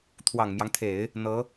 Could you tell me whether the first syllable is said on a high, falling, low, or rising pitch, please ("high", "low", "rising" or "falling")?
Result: low